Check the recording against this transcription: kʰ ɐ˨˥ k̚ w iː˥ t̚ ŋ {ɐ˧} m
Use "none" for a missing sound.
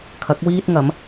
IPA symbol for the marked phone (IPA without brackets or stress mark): ɐ˨˥